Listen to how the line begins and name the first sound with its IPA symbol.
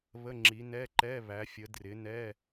β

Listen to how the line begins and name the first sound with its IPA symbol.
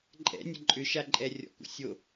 ǃʼ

